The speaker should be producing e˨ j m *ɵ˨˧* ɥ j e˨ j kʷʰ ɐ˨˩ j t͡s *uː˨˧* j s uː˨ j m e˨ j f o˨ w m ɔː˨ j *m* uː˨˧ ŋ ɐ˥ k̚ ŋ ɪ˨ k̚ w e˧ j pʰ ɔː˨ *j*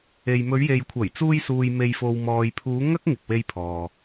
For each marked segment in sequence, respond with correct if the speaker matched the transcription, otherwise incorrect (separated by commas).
correct, incorrect, incorrect, incorrect